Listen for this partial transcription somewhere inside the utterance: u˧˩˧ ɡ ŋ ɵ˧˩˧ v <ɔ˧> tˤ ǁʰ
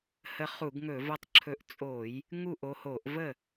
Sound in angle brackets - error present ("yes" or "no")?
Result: yes